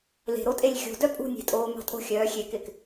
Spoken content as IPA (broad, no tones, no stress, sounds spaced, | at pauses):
l e̤ ɾ o tʼ e lʲ xʲ o̤ d œ pʼ ṳ nʲ e̤ tʼ oː m ɑ̤ tʼ o̤ xʲ œː xʲ e k ɪː k